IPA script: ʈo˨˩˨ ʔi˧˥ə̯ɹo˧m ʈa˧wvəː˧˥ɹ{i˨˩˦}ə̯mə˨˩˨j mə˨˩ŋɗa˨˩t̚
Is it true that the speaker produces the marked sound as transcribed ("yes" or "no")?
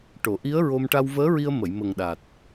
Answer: no